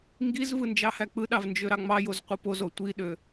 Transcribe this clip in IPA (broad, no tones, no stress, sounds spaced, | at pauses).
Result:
ŋ ɡ i z v ɯ n d͡ʒ ɑ h æ k͡p ɯ ɗ ɑ v n d͡ʒ ø ɾ ɑ ŋ͡m ɑ j o z qʷ ɯ p o z o tʷ i ɗ ø